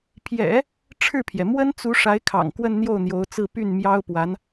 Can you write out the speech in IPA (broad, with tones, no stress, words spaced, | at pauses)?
pʰjɛ̰˨˩˦ | ʈ͡ʂʰɻ̩˥˩pʰjɛ˩ mwə˥nt͡su˧˥ ʂa˧˥ɪ̯kʰɑ̰˨˩ŋ kwə˥˧nn̪jo˥˩ʊ̯n̪jo˧˥ʊ̯t͡sɹ̩˥˧ py˥˩n mjɑ˥ʊ̯pwa˧˥n